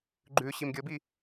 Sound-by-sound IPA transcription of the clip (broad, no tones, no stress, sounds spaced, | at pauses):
ɡ͡ǃ ʉ ɕ i m ɡʲ ɤ b i